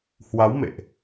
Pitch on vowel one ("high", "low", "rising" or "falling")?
rising